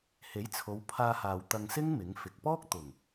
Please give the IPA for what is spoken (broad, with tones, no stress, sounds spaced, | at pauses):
h e˨˥ j t͡sʰ o˨˧ w pʰ aː˧ h aː˨ w t̪ ɐ˧ ŋ s ɪ˥ ŋ m ɪ˨˥ ŋ f ɪ˨ k̚ p ɔː˥ k̚ t̪ ʊ˨˩ ŋ